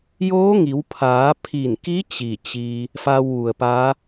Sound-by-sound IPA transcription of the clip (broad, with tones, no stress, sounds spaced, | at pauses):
j oː˧˥ ŋ i˩˧ w pʰ aː˩˧ pʰ i˧˩ n k i˧˥ t͡ɕ i˧˩ t͡ɕ i˧ | f a˧ w ʋ u˩ ə̯ p a˧˥